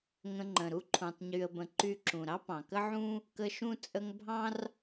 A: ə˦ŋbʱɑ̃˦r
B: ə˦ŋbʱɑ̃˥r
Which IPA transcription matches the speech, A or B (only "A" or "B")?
B